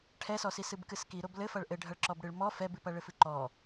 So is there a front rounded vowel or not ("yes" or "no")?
no